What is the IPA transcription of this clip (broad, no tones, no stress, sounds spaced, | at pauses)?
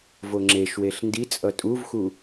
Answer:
v o ŋ͡ǁ e ʃ w e ɬ n d i t͡sʼ ʌ tʼ u v x u